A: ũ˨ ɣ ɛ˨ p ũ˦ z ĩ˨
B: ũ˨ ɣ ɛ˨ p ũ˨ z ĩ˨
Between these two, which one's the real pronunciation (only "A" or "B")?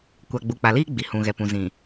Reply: B